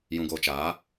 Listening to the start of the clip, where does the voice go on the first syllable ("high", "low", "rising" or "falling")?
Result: low